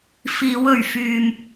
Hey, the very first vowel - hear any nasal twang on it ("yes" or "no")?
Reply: no